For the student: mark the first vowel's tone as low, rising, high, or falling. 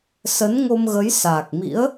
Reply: rising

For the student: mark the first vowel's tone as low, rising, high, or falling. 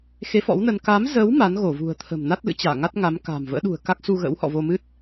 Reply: rising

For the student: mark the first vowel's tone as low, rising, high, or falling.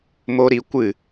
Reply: high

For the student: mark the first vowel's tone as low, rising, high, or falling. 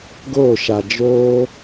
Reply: falling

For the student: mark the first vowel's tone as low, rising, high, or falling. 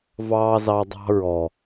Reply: high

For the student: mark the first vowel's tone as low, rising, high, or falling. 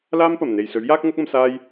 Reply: high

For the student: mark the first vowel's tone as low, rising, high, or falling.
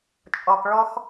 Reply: low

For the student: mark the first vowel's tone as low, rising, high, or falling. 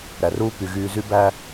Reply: low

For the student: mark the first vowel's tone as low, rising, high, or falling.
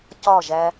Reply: falling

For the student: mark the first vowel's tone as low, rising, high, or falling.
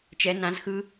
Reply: rising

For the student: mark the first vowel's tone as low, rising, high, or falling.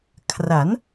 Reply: rising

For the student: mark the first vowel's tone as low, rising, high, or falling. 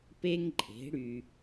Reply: high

